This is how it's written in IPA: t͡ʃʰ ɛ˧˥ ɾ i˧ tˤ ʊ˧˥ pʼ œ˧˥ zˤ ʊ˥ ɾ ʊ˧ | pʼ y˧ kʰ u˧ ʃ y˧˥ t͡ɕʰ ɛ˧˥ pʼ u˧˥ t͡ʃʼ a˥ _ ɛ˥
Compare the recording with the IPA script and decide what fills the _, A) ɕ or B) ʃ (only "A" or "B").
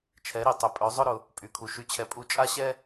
A